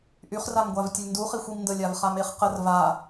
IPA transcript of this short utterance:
ʔ y χ r a m ɡʷ a v tʲ ə lʲ n d u χ i xʷ i m n d ə lʲ a v χ a m e χ q ə r v a

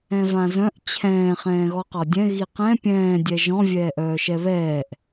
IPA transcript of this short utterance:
ɛ̃ v ã z œ̃ ʔ t͡ɕʰ ɛ̃ː χ ɛ̃ː ɣ ɔ q ɒ dʲ ɛ̃ ɣ i q ɛ̃ pʲ ɛ̃ː dʲ ɛ ʒ ɔ̃ vʲ ɛː ʔ œː ʃ ɛ β ɛː ʔ

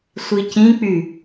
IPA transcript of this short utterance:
sʷ i c ĩ k͡p y

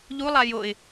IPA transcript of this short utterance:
ʎ u lˠ a j o ɪ̯

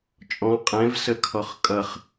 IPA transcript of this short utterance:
t͡ʃʼ ɔ̃ qʼ ɛ̃ v s ə kʰ ɔ χ kʼ ʌ χ

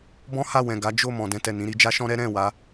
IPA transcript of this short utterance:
b ɔ̃˦ h a˦˨ w ɛ̃˨ ɡ a˨˦ d͡ʒ o˦˨ m ɔ̃˨ d ɛ̃˧ t ɛ˨ n ĩ˧ ɾ i˧ d͡ʒ a˦ ʃ ɔ̃˦ ɾ ɛ˦ ɾ ɛ̃˦˨ w a˨˦

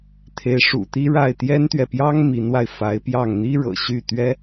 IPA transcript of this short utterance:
t̪ʰ e˧˥ ɪ̯ ʂ ṵ˨˩ t̪ i˥ ɻ a˥˩ ɪ̯ t̪ j ɛ˥ n t̪ ɥ ɛ˨ p j ɑ˥ ŋ m i˧˥ n w a˧ ɪ̯ f a˧˥ ɪ̯ p j ɑ˥˩ ŋ n̪ i˥ ɻ ɤ̰˨˩ ɕ y˥˩ t̪ ɥ ɛ˥

